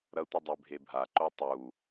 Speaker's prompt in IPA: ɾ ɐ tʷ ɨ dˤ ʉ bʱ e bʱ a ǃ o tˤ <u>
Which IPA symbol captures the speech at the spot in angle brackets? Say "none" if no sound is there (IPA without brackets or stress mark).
u